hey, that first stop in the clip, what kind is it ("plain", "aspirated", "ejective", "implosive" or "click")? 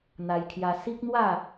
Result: aspirated